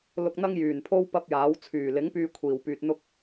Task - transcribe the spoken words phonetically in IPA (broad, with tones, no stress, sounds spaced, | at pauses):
l ʊ˧ k̚ n̪ ɐ˥ ŋ j yː˨˩ n pʰ o˥ w p ɐ˥ p̚ j aː˨˥ w t͡sʰ yː˨˩ l ɪ˨˥ ŋ p yː˧ kʷʰ iː˨˩ w p yː˨ t̚ n̪ ʊ˥ k̚